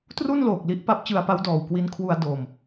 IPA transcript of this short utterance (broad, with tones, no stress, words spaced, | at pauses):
tru˥˩nloː˨˩k̚li˦˥ʔ pa˦˥p̚t͡ɕɯ˧a̯pa˦˥w dɔː˨˩wkwi˦˥nkʰwu˧a̯ doː˨˩m